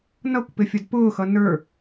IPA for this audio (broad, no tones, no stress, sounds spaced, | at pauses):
n ʌ kʷ p ɪ fʲ ʌ d p ʊː x ʌ n ə˞